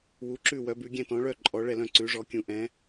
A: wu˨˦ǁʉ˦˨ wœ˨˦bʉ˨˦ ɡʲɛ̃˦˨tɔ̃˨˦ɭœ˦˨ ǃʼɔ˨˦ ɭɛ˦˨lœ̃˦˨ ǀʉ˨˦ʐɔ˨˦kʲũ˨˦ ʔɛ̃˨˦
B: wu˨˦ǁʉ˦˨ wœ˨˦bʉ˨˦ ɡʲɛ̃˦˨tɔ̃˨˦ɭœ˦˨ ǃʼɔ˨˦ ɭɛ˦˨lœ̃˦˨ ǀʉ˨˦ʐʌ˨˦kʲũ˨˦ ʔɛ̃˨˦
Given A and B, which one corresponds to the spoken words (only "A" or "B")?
A